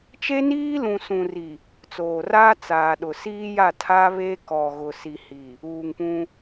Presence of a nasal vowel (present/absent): present